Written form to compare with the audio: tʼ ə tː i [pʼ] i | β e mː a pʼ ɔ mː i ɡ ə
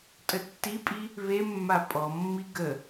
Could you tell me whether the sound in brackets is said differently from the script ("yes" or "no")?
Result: no